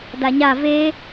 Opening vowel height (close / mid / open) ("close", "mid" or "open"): open